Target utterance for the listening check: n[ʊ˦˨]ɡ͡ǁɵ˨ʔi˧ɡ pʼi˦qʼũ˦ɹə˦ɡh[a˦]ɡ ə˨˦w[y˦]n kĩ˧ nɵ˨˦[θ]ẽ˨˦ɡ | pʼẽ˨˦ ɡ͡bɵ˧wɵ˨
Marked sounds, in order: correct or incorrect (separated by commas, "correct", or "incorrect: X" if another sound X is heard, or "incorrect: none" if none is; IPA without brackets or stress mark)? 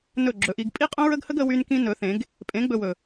incorrect: ɵ˦˨, incorrect: ə˦, correct, correct